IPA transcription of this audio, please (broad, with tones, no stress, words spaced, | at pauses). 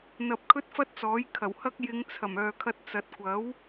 n̪ɐ˧p̚kʰɵ˥t̚fɐ˥t̚t͡sɔː˨˥j kʰɐ˨˩whɐ˥k̚ jɪ˨˧ŋt͡sʰɐ˨˩m œː˨kʰɐ˧t̚ t͡sɐ˨t̚kʷɐ˨˥w